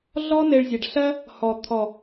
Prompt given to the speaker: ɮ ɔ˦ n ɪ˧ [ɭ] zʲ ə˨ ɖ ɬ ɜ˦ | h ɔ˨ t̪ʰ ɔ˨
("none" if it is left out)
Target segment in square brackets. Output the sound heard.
ɭ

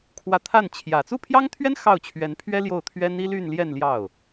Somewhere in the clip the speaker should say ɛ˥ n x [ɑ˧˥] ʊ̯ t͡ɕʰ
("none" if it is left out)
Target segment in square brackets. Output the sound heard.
ɑ˥˩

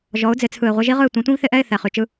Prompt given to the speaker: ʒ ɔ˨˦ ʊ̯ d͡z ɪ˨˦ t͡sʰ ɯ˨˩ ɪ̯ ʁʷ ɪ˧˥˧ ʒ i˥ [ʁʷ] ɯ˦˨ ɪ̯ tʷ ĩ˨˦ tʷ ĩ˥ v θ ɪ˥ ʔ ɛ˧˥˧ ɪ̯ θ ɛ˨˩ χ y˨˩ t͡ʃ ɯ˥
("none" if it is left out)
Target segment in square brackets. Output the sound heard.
ʁ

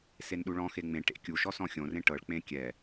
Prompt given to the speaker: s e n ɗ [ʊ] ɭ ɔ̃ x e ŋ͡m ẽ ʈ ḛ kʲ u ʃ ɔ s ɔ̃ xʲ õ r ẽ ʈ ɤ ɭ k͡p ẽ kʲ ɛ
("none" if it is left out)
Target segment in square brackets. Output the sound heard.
u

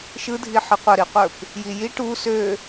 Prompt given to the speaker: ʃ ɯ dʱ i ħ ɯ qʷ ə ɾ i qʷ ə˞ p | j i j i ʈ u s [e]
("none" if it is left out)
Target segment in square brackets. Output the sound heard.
ø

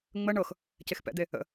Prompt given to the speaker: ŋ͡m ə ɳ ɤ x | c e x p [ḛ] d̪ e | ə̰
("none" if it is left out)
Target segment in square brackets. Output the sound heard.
ɛ̰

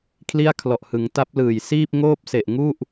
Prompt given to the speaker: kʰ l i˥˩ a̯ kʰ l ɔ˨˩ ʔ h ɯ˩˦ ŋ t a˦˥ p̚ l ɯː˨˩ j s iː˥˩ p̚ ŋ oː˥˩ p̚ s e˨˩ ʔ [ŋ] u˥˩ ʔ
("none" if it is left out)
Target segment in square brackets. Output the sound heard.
ŋ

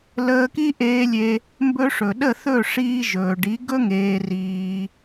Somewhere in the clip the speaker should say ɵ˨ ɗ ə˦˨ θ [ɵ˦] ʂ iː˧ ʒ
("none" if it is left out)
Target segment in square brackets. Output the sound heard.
ɵ˦˨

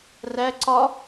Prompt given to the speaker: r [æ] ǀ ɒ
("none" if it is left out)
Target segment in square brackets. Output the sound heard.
æ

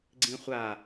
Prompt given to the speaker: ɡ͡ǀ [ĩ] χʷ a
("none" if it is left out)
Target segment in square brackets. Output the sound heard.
ĩ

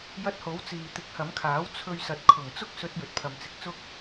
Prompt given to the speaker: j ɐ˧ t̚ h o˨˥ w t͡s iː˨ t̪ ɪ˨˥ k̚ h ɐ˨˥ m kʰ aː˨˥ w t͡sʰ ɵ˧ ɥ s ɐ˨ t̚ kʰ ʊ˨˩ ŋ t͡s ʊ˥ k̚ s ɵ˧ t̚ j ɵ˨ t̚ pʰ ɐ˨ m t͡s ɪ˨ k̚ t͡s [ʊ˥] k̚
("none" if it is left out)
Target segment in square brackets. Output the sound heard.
ʊ˥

